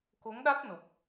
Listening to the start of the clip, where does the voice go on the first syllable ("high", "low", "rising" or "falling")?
rising